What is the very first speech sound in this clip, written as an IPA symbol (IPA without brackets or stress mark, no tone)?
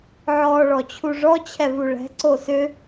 ʕ